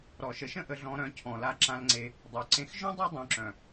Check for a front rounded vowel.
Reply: present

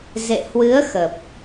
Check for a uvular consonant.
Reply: absent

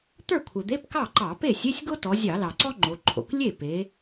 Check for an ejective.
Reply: absent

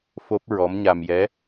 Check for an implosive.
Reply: absent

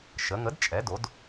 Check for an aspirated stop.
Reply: absent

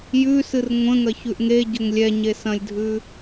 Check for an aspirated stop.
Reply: absent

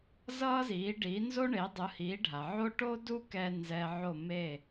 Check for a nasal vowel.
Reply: absent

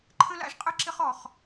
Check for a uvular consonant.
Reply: present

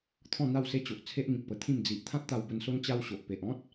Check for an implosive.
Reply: absent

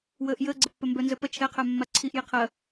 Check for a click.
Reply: present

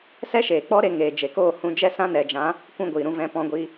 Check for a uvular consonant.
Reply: absent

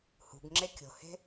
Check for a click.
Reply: present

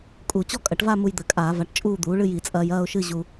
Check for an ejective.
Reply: present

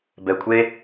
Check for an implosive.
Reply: absent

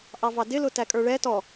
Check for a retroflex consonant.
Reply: present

